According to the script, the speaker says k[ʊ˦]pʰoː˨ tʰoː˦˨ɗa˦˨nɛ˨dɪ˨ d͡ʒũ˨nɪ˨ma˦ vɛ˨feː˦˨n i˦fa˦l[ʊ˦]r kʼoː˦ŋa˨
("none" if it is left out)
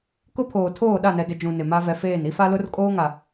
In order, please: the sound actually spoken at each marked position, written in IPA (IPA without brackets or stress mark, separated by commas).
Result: ʊ˦, ʊ˦